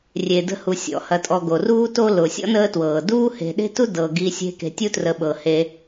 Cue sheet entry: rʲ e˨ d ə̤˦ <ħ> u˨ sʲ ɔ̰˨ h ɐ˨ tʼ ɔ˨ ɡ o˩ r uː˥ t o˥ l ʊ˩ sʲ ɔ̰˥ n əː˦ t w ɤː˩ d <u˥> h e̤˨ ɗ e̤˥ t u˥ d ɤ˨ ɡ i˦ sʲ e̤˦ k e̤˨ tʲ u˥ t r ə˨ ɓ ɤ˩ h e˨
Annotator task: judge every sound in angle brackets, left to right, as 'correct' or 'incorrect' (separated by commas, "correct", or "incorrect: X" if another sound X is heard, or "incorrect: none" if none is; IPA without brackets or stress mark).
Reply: incorrect: h, incorrect: uː˥